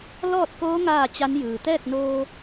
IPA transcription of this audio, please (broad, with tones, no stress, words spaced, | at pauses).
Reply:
lɔː˥˨t̚koː˧˥ ŋaː˥˨t͡ɕa˧˥n jɯː˩t̪ɛː˥˨k̚ noː˧